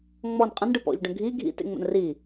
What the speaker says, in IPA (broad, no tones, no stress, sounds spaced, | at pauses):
ŋ͡m ɔ n qʼ ə̃ n ɖ ɯ p ɔ̰ ʎ ɖ ə̃ ɡʱ i ɡʱ ḭ t ḛ ŋ͡m ə̰ n r i